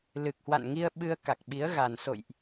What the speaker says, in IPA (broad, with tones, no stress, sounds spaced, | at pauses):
l ɨ˨˩ k̚ h w a̰˧˨ n ŋ i˧ ə̯ ɓ ɨ˧ ə̯ k a˨˩ k̚ ɓ i˨˦ ə̯ ɣ a˨˩ n s o̰˧˨ j ʔ